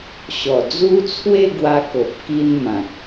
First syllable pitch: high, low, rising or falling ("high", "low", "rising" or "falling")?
low